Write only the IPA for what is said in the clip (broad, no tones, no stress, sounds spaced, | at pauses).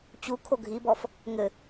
t͡ɕ u kʰ o ɡʱ i b ɔ f | ŋ ɘ